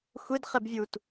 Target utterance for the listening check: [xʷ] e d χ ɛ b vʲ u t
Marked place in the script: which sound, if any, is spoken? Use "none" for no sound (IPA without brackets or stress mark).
xʷ